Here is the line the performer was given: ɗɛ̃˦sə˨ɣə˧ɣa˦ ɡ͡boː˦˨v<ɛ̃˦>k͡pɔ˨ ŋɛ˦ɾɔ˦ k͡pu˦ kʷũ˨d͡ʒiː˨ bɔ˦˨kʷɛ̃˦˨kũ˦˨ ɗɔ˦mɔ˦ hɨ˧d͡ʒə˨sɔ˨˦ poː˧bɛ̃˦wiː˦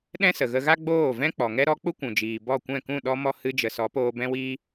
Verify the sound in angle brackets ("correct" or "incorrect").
correct